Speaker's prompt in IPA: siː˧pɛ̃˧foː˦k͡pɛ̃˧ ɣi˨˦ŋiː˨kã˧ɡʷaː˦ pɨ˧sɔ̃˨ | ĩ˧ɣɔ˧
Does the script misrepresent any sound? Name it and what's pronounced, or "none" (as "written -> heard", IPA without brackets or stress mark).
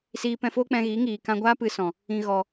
none